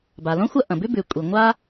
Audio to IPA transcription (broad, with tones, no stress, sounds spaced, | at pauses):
b a˩ l õ˥ xʷ ɐ˥ ʔ ɐ̃˩ b ʉ˥ b ʉ˩ kʷʼ i˩ ŋʷ a˥